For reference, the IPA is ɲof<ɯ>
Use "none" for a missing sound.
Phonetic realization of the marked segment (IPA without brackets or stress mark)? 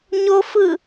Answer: ɯ